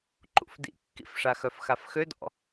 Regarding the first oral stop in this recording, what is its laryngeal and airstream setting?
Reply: click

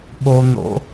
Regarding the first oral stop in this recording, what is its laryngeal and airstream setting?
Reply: implosive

